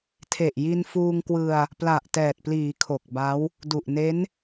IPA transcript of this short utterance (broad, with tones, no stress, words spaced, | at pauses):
tʰe˨˩ʔji˧nfuː˧ŋkwɯ˧a̯ | pla˨˩ʔtɛː˨˩t̚pliː˩˦ kʰo˨˩k̚ba˦˥w | du˨˩ʔne˦˥n